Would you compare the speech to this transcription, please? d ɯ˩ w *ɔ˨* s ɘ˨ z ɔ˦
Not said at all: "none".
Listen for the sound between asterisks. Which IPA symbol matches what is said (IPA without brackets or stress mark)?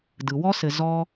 ɔ˥